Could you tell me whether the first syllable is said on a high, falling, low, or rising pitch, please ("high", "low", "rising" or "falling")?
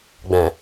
low